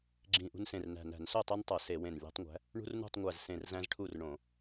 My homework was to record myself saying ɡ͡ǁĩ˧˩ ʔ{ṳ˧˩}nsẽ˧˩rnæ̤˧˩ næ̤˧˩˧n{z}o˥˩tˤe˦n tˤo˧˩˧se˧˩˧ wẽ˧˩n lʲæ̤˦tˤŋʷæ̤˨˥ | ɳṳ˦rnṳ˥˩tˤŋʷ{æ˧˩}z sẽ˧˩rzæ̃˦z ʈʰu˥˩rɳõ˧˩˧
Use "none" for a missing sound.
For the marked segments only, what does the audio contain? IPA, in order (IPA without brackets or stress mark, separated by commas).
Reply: ṳ˦, s, æ˧˩